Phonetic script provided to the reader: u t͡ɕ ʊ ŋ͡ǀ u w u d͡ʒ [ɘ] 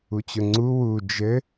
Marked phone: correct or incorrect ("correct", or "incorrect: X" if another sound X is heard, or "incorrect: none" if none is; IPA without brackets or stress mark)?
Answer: correct